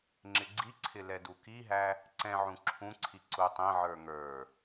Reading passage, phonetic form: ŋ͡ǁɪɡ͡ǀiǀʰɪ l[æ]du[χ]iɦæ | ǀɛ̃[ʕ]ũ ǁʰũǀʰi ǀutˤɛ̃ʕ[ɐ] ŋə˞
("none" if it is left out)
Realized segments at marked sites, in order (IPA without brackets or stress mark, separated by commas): ɛ, k, ʕ, ə˞